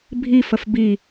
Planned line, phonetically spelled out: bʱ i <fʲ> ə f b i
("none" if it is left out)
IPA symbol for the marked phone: f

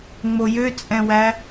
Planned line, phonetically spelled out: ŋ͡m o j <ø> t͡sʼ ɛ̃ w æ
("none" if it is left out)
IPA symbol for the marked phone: ø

